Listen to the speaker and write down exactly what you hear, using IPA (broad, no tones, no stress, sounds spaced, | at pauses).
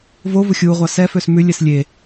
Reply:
v o v ʊ xʲ u ʁʷ ɑ s ɛ f ø s m ʉ lʲ ɛ s lʲ e